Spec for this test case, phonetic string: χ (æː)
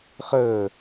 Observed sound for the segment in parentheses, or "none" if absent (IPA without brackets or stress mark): əː